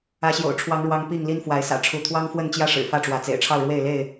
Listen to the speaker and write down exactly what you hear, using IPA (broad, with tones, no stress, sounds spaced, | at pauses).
ä˨˦ ɕ j o̰˨˩ ʊ̯ ʈ͡ʂʰ w ɑ˨˦ ŋ ɻ w ɑ˨˦ ŋ p i˥˨ ŋ l i˦ n f w a˨˦ ɪ̯ s ä̰˨˩ ʈ͡ʂʰ u˨˦ t̪ʰ w ɑ˦ ŋ f w ə˥˨ n t͡ɕ j ä˦ ʂ ɻ̩˨˩ f ä˥˨ ʈ͡ʂ w ä˨˦ t͡s ḛ˨˩ ɪ̯ ʈ͡ʂʰ ɑ˥˨ ʊ̯ ɻ w e˥˨ ɪ̯ l e˥˨ ɪ̯